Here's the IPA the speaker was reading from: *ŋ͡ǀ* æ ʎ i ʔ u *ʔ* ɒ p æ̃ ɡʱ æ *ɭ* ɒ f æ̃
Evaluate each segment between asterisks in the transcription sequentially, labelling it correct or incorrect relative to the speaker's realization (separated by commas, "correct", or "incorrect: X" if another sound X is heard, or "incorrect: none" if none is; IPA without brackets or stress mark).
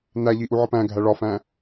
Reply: incorrect: n, incorrect: ʕ, correct